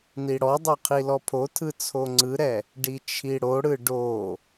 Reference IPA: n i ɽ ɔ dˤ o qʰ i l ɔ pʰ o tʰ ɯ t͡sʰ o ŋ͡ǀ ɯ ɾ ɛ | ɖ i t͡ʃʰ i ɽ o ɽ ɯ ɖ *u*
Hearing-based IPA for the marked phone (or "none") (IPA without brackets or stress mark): o